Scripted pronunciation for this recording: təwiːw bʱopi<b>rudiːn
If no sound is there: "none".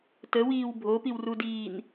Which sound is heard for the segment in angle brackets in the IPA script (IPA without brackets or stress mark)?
w